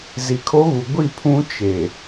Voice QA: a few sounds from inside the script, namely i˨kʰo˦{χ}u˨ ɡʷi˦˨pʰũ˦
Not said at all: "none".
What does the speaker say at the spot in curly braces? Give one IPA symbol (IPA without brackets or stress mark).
ɣ